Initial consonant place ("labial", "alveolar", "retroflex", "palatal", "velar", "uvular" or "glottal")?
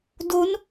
alveolar